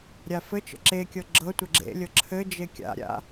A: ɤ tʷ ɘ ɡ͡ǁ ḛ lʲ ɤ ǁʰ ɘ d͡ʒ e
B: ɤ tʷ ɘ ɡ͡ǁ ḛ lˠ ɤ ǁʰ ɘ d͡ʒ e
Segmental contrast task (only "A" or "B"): A